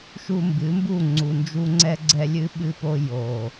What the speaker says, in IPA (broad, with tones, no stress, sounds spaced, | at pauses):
ʃ u˨ m b ɨ˨˦ m b u˦˨ ŋ͡ǀ u˨ n d͡ʒ u˦ ŋ͡ǀ ɛ˦ ɡ͡ǀ ɛ˦ lʲ ɨ˦ ɓ ɨ˦ p o˦ j o˨